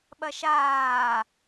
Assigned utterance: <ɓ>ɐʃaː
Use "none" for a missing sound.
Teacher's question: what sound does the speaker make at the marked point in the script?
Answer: ɓ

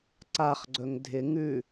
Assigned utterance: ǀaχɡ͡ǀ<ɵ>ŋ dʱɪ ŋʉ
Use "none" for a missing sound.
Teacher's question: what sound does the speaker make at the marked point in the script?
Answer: ɵ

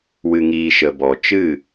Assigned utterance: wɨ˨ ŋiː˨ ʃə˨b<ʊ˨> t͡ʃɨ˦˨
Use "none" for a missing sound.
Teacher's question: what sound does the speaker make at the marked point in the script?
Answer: ɔ˨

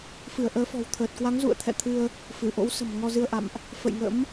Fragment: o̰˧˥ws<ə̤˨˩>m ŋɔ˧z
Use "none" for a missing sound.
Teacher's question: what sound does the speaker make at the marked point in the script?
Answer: ə̤˨˩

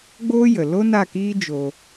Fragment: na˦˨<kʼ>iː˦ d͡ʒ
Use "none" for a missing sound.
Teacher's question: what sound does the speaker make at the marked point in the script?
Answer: k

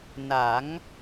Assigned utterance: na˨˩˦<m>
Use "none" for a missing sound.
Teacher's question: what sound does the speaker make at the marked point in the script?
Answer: ŋ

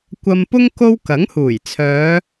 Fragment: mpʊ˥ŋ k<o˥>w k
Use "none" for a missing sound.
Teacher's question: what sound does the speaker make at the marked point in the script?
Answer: o˥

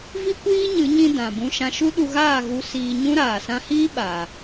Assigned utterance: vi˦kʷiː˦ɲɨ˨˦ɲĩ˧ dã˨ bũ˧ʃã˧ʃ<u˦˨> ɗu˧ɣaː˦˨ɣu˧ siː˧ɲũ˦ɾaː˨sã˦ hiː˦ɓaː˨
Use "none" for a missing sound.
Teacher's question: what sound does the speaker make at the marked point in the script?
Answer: u˦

